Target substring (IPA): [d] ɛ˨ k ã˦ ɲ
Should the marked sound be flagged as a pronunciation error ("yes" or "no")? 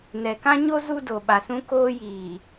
yes